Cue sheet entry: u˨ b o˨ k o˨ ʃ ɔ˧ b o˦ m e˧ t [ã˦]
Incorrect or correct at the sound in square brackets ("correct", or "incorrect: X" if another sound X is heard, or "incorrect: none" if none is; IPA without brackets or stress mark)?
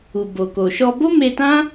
correct